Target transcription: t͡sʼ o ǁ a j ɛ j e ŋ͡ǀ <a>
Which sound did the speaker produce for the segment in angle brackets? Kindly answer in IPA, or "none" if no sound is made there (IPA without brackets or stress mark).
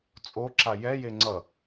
ʌ